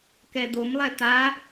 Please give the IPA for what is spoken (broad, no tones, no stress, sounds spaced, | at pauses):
k ɛ d̪ o m lˠ ɛ t̪ a